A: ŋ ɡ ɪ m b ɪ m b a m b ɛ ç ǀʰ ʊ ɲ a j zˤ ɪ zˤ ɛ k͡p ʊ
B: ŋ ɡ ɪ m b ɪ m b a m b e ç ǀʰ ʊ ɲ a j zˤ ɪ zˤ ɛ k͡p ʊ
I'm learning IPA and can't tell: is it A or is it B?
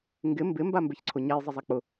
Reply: B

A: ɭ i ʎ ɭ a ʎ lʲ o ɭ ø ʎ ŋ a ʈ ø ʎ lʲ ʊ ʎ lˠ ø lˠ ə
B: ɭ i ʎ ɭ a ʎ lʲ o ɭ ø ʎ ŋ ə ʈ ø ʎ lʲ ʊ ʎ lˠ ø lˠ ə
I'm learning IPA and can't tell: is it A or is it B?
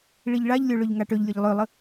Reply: A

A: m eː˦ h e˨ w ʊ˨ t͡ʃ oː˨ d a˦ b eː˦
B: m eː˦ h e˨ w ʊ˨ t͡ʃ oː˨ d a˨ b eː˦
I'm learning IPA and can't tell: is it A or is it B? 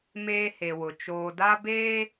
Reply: A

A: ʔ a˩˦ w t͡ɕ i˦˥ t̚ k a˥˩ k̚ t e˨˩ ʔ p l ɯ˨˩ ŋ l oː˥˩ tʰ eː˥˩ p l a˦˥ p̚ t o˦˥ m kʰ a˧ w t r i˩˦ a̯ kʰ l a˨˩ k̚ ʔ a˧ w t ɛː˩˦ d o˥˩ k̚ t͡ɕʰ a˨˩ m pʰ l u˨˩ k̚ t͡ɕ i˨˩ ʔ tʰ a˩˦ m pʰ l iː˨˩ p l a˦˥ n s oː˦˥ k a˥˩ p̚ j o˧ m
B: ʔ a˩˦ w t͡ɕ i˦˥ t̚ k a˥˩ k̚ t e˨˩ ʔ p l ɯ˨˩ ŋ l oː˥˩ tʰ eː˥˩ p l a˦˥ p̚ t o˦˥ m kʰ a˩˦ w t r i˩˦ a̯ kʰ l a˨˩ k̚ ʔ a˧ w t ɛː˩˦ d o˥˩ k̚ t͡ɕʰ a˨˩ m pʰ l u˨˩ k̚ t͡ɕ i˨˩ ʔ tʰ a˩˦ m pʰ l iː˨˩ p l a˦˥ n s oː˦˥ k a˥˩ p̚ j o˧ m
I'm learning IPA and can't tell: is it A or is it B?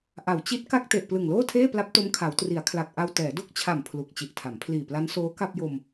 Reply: B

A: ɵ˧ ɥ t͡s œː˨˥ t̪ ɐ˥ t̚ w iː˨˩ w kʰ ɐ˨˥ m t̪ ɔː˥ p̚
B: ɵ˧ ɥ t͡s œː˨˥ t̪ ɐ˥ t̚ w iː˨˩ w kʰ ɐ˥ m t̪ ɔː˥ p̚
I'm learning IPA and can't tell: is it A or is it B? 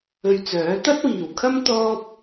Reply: B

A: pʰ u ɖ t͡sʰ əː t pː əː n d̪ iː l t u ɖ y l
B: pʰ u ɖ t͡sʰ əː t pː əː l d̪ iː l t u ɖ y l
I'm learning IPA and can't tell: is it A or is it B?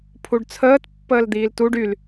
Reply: B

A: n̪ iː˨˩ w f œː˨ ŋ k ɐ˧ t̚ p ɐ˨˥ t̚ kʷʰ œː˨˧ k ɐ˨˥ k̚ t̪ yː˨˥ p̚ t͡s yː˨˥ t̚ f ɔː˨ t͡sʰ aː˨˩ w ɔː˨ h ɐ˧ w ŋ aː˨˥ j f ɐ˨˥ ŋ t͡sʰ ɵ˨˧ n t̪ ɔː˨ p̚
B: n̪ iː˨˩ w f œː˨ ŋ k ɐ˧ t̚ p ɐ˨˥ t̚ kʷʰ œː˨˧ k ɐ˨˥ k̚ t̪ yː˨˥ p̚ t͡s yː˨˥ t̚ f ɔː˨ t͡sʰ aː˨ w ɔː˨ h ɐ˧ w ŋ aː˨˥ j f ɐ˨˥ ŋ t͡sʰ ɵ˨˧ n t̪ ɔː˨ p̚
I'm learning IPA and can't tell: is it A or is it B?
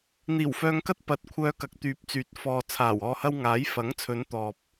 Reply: A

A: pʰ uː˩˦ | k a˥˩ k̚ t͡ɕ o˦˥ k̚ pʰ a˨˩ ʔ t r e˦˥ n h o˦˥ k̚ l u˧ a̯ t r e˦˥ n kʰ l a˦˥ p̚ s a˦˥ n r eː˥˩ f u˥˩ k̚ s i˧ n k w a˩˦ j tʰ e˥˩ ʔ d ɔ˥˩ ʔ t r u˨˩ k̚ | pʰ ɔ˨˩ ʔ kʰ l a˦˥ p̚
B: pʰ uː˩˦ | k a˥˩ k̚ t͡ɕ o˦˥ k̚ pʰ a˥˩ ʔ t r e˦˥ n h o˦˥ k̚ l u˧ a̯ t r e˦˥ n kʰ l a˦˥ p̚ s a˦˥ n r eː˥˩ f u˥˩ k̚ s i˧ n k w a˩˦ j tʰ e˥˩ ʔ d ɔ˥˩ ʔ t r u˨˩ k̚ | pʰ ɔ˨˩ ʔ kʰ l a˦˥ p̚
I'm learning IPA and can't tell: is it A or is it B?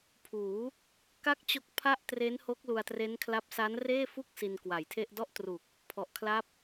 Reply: B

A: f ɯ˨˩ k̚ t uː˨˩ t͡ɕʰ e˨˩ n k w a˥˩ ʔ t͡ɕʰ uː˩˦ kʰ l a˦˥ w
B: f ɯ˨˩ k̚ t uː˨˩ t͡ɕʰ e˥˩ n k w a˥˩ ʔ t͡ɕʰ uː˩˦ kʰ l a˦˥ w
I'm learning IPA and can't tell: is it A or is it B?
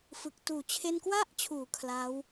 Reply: B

